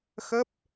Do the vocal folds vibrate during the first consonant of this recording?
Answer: no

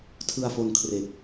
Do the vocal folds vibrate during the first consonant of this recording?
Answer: no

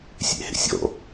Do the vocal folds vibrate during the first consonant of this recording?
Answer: no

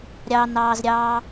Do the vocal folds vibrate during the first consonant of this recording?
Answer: yes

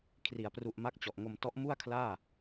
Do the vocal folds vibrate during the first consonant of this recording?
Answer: no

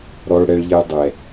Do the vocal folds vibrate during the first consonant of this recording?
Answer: yes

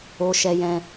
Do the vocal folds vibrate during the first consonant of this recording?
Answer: no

